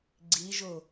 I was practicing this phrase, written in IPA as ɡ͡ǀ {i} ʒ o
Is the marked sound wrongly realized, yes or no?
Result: no